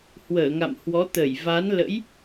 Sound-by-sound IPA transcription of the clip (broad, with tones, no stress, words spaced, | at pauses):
hwəː˧˩ŋa̰˧˨m hwɔ˨˦ t̪ə˧˩jva˨˦n lə̰˧˥j